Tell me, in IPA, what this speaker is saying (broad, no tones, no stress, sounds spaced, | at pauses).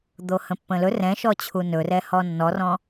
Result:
d̪ o h ə̃ pː ə̃ l ɵ r ɛ̃ ʃ ɔ t͡ɕʰ u n ɵ r ɛ h ɔ nː ɔ r ɔ̃